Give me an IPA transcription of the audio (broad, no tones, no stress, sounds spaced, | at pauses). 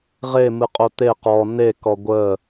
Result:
ʁ e m ɨ qʼ o t̪ e q ɔ n e k ɔ ɡʷ ə